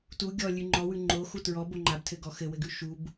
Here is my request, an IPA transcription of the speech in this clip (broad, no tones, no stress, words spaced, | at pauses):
tu ɡʲɔlʲʉ ŋ͡ǃɔwʉ ŋ͡ǃoxu tɹɔbo ŋ͡ǃabtʰɘɡɔ xɘwɘɡʉ ʃub